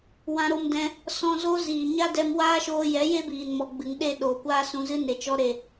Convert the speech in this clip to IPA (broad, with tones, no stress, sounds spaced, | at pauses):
w ã˧ ɾ o˧ m d ɛ̃˧ | s ɔ̃˧ z o˦ z iː˨ ɲ a˦ d ɛ˧ m w aː˦ ʃ oː˧ j ɛ˨˦ j e˦ b iː˨ n m ɔ˨ ɡ͡b ɨ˨ ŋ ɗ e˦˨ ɗ oː˨ kʷ aː˦ s ũ˧ z ɨ˦ n e˨ t͡ʃ ɔ˦ ɾ e˨